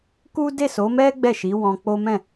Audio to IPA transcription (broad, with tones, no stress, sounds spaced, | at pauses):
k u˦ d e˦˨ s o˨˦ m ɛ˦ ɡ͡b ɛ˦˨ ʃ i˨˦ w ɔ̃˧ k͡p o˦ m ɛ̃˦˨